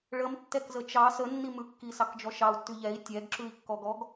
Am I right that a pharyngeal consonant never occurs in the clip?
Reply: yes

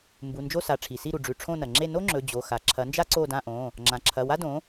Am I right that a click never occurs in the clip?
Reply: no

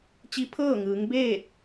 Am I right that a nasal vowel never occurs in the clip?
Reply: yes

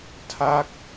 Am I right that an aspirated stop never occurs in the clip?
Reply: no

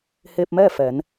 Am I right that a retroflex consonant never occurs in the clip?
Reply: yes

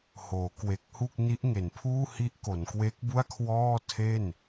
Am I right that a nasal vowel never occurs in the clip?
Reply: yes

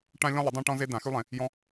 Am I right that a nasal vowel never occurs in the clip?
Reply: no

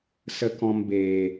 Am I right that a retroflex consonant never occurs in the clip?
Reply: yes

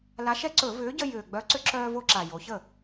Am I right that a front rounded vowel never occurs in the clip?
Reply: no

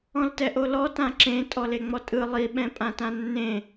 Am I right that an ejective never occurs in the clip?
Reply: no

